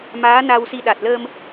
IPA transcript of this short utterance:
maː˨˦na˧wsi˧ ɗa˨˩t̚ləː˧m

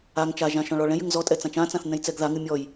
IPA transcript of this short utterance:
aŋ t͡ʃaʒã ʃɔ̃ɭɔɭɛ̃jɨŋ zɔtʼɛ t͡sãt͡ʃãt͡sãθ nɛ̃jt͡sɛɡðaŋɨ mʲɔj

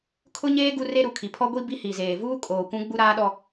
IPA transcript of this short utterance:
kʰʊ˦ɲeː˦ ɡu˦re˦ɾu˨kʰi˨ pʰɔ˦ɡʷi˦ bi˦hi˨zeː˨ vuː˦ kʼoː˨kʷũ˦ ɡ͡bu˦ɾaː˦ɗɔ˦

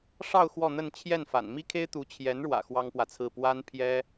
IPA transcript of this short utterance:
ʂɑ˥˧ʊ̯ xwɔ˥˧n̪ə˥˧n t͡ɕʰjɛ˥˩nfa̰˨˩n mi˥kʰe˥ɪ̯t̪u˧˥ t͡ɕʰjɛ˧˥nɻwä̰˨˩ xwɑ˥ŋpwä˨t͡sʰɹ̩˥˩ pwa˥n pʰjɛ˥

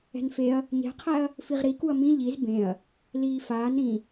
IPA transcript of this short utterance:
ɛ̤nfeɐ̯ | ɲɛ̤qʰɛɐ̯ | fiʁɾikuɐ̯ mĩ ʎiz bẽɐ̯ | liːfaːn ɾĩ

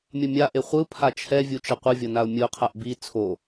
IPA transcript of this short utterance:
mʲʌmʲaʔe χʷɯ pʰat͡ʃʰɛvʲu t͡ʃʌqʷɯvʲʌ naʊ̯mʲɯʊ̯qʰaʔ bi t͡sʰo

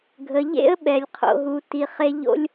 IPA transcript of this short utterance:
ɡʱə˧ ʎḛ˦ə̯ɓɛ˧lʲ qʰo̰˦ɦu˦ti˦ χe˦ʎo̰˦lʲ

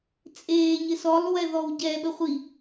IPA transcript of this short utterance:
t͡sʼeː ɲɪsɔlˠ wɛðɔwɟɛ ɓəχʷi

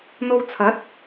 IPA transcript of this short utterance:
n̪o˧wt͡sʰɐ˨˥t̚

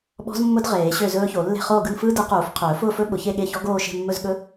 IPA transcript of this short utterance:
ɓɔ̤˦˥zmːʊ˦˥d ʁeː˨˩˦ɕø˥˨zɵː˦˥ço˨˩˦ lːe̤˥˨χoː˥˨ ɡɯ˥˨nfɯː˦˥ dɯ˨˩˦quː˨˩˦f qʰɵː˨˩˦fʊː˥˨fɵ˦˥ ɓʊ˨˩˦çe˥˨ɠe˥˨çɔ˦˥ ɡoː˥˨ʃe̤˥˨mːɵ˥˨z ɠɵ˦˥

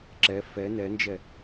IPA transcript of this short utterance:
ǁɛ fɛ nɛnd͡ʒɛ

